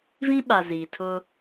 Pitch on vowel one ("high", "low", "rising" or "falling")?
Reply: high